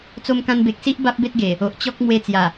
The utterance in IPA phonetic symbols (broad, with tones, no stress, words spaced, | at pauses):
t͡so˧mkã˧nbe˨k̚ si˦ʔ ba˦p̚be˦t̚ɡe˨˩ | o˨ʔt͡ɕɔ˦k̚ mwe˧t͡sja˨˩